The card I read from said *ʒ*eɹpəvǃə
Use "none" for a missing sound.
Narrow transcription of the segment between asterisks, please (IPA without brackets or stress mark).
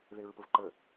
ð